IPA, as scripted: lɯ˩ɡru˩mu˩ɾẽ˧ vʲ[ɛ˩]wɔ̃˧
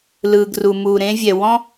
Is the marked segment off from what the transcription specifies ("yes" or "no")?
no